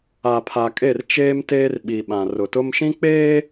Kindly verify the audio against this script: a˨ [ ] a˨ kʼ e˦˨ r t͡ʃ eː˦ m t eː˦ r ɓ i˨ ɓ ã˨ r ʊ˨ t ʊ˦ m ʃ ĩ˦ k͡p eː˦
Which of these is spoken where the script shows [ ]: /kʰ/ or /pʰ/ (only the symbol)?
pʰ